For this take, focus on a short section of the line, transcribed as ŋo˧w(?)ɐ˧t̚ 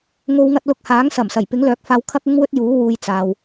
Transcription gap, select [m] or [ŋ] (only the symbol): ŋ